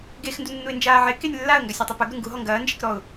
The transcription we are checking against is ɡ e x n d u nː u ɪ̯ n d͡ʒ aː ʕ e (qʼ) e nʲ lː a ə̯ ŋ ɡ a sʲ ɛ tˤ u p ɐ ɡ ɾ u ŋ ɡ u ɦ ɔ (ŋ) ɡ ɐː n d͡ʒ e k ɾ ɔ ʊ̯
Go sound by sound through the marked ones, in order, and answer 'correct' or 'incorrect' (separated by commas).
incorrect, correct